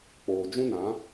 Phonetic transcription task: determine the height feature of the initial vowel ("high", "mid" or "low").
mid